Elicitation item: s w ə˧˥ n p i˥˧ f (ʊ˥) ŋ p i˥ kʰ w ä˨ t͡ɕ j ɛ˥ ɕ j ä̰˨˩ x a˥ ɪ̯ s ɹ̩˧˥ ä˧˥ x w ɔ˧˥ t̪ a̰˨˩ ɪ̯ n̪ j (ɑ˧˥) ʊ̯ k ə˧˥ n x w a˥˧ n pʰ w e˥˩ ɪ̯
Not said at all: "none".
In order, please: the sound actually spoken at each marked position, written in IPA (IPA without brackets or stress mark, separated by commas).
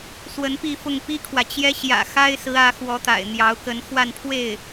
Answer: ʊ˥˩, ɑ˧˥